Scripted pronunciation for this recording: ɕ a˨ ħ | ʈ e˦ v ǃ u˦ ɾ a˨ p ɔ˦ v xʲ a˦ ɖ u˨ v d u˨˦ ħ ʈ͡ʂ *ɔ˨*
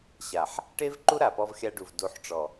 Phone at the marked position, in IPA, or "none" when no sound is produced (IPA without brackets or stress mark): ɔ˨